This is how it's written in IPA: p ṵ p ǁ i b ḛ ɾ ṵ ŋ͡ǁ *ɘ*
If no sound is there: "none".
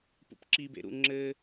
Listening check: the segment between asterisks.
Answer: ɘ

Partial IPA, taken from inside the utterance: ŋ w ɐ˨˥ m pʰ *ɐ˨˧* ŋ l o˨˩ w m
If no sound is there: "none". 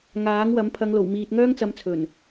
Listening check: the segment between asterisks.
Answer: ɐ˨˧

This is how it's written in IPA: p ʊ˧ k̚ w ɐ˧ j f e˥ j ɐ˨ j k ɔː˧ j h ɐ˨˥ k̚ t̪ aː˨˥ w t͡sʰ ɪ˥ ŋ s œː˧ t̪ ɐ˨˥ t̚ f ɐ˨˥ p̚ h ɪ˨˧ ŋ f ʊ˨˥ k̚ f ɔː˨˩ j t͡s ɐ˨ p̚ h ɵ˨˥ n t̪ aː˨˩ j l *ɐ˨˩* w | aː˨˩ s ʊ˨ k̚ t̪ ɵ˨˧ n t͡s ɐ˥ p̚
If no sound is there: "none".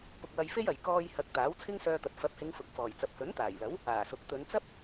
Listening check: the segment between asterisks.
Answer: ɐ˨˥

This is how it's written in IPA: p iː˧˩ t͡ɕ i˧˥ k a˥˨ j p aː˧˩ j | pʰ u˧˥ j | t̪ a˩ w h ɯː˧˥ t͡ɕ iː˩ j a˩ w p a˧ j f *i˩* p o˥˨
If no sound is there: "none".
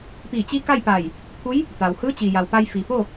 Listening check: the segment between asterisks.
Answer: i˩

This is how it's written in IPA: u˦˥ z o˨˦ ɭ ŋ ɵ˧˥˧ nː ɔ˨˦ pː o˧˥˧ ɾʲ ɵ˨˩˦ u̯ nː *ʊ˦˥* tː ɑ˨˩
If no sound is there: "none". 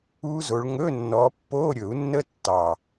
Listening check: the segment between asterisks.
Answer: ə˦˥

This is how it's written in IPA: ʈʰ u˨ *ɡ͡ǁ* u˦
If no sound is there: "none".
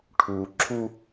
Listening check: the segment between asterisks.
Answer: ǁʰ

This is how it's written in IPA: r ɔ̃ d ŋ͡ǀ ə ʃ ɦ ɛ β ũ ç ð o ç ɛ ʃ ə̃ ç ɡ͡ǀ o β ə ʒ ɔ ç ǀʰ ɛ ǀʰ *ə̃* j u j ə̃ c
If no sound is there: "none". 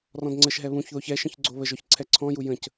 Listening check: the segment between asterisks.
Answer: ɔ̃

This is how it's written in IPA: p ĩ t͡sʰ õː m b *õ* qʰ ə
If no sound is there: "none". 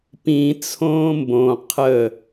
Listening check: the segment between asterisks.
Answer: õ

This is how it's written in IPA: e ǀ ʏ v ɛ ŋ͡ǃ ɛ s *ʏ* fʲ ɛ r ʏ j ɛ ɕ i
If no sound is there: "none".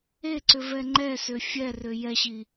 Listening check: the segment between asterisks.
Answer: ʏ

